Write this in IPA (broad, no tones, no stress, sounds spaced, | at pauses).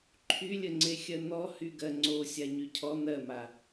ǃʰ y lʲ ə ŋ͡ǀ e xʲ ɜ n̪ ɔ h y ɡ ɜ ŋ͡ǀ o sʲ a ɲ y cʰ ɔ n̪ ɜ m a